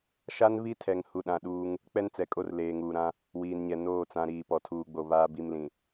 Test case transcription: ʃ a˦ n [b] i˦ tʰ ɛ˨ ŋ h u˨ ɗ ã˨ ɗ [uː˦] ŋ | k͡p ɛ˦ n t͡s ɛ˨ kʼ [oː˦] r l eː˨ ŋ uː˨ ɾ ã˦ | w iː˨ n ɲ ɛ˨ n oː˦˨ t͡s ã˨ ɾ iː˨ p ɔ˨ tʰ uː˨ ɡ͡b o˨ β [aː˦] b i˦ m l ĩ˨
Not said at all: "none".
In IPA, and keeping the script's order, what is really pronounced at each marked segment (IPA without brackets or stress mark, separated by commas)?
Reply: β, uː˦, o˦, aː˦